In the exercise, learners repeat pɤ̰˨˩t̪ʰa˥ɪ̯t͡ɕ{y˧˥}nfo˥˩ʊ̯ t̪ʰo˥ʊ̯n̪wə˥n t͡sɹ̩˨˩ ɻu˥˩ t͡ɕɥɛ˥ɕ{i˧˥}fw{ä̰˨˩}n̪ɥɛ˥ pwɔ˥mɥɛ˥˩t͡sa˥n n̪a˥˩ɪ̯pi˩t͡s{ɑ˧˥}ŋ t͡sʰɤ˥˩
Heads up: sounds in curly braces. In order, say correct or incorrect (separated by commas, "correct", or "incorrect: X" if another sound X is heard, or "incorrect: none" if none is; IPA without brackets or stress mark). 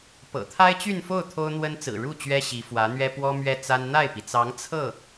incorrect: y˥˧, correct, incorrect: ä˧˥, correct